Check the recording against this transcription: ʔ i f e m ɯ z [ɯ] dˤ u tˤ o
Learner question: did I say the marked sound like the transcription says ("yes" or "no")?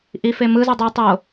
no